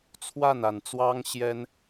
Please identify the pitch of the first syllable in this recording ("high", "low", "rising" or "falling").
falling